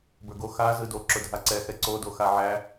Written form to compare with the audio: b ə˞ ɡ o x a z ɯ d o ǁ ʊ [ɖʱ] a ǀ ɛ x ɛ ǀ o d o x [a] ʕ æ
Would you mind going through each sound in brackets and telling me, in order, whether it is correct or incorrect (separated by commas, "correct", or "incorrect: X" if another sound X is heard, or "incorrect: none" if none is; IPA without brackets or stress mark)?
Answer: incorrect: dʱ, correct